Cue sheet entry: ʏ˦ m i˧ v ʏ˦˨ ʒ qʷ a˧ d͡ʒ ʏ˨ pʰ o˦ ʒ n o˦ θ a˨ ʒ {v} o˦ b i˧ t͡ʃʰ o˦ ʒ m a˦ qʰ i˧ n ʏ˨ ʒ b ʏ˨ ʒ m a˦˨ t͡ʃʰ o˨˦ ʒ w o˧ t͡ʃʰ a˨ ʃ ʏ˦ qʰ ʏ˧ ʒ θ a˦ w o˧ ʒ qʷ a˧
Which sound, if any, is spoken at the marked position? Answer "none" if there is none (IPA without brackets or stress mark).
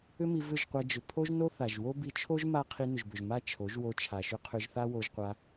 w